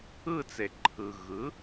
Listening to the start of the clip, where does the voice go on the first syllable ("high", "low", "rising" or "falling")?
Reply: falling